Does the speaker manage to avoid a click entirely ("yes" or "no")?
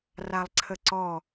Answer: no